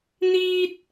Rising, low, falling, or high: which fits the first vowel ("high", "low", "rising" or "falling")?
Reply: high